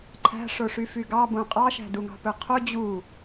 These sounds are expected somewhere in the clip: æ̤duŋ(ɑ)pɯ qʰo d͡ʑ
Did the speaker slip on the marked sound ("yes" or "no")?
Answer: yes